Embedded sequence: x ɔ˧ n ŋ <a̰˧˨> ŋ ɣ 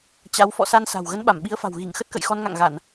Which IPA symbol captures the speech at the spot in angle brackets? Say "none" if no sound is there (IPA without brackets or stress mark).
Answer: a̰˧˨